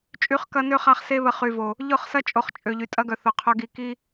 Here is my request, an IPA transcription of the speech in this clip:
t͡ʃʼ y˨˦ χ k ɐ˧ n ø˧ χ a˧ χ s e˧ β ə˨ χ y˨ v o˨ | ʎ ʊ˦˨ χ s ɐ˦ t͡ʃʼ o˨ χ t͡ʃʼ ø˨ ʎ y˨ tʼ ɐ˧ ɡ œ˨ θ ʊ˨ qʰ œ˧ ɡ i˧ k i˦

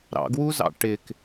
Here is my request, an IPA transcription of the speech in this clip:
ɾ ɑ̰ ɡ w u z ɑ̰ ʈ ɪ k

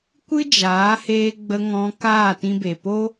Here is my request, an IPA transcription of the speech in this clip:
kʷ ɨ˦ d͡ʒ aː˨˦ h eː˧ ɡ͡b ə˧ ŋ ɔ̃˧ k aː˦˨ t ĩ˧ b e˨ p o˦

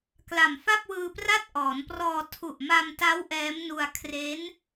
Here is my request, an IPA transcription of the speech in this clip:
k l a˨˩ m f a˥˩ p̚ w ɯː˧ p r a˥˩ t̚ ʔ ɔː˩˦ n p r ɔː˧ tʰ u˨˩ ʔ m a˧ m t a˦˥ w ʔ ɛː˦˥ m n u˧ a̯ kʰ r e˦˥ n

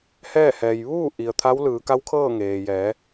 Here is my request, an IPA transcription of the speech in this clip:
h ɛː˥˨ h ɛː˩ j ʋ uː˥˨ ʔ i˩ ə̯ t̪ʰ a˧˥ w l ɯː˩˧ k a˧˥ w kʰ ɤː˥˨ ŋ eː˩ j ɛː˩˧

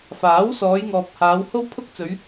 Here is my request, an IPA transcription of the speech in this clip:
f aː˨˥ w s ɔː˨˧ j ŋ ɔː˨ p̚ h aː˨˧ w h o˥ w pʰ ʊ˥ k̚ t͡s ɵ˨˧ ɥ

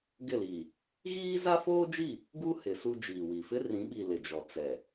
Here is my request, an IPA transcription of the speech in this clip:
ɡ ɪ˦˨ l i˨ | ɣ iː˦ z a˦ f oː˦ d͡ʒ i˦˨ | ɡ u˦ h ɪ˨˦ s u˦ d͡ʒ iː˨ w i˨ f ɪ˦ r ĩ˨˦ ɓ i˨ l ɪ˨ d͡ʒ ɔ˨ t͡s ɛ˨

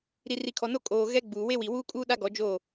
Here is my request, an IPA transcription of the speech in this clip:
ɾ i˨ r i˨ kʰ ɔ˨ n o˦ kʼ oː˨ ɣ ɛ˦ ɡ͡b uː˨ w e˦ w i˨ w uː˦ kʼ uː˦ ɗ a˦ ɡ ɔ˨˦ d͡ʒ o˦˨

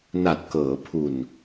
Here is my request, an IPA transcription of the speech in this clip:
n a˨˩ t̚ k ɤː˩˦ pʰ u˨˩ n

